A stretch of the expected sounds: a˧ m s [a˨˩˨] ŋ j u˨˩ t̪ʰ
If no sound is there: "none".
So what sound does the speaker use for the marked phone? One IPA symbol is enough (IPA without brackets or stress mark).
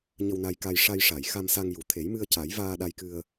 a˧